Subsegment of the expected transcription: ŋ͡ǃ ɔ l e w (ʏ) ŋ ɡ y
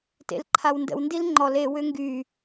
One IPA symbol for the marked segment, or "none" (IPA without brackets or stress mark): ʏ